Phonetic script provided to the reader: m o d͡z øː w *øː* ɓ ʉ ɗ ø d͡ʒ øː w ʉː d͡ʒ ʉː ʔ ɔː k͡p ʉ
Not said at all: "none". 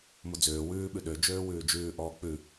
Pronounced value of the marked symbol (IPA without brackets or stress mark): ʉː